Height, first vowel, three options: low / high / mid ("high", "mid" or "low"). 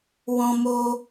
mid